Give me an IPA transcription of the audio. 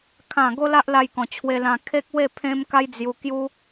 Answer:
kʰ ã˥˧ ɡ o˦ l a˦ ʔ l a˧ j k ɔ̃˨˩ t͡ɕʰ w e˧ l ã˧ kʰ e˦ k̚ w e˥˧ pʰ ẽ˦ m k a˦ j d͡z j u˧ k j u˦

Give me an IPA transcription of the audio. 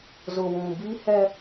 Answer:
z ʊ˨ w ũ˨ b i˦ h ɛ˦

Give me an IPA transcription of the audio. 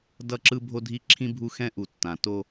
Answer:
d ʌ˦˨ ǁ ɯ˦ bʱ o˦ dʱ i˦ ǁʰ ĩ˦ bʱ u˦ x ɛ̃˦ ʔ u˨ tː ã˨ t o˦

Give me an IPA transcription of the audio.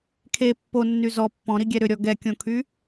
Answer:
kʰ e pː o nː y z ɔ pː ɔ̃ ɾ i ɡʲ ɛ ɾ ʏ ɾʲ ɔ ɡ ɛ kʲ õ kʰ y

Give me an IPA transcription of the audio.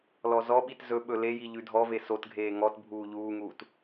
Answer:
l ɔ z ɔ ɓ i t z ɵ ɓ ɵ l e j i ʎ ʉ dʱ ɔ v e s o t ɡʱ eː ŋ ɔ t bʱ uː ʎ uː ŋ uː t

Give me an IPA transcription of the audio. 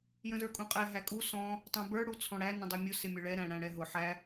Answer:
j ə̃ z ə˞ kʼ ũ qʼ ɛ ɦ æ kʼ u s ɔ̃ | tˤ ũ b ə˞ ɽ u t͡sʰ ɔ̃ ɽ æ n ə̃ dˤ u mʲ ʊ s ɪ mʲ ʊ ɭ ɛ ɾ æ̃ ɽ æ̃ ɽ ɛ ɦ ʊ ħ æ

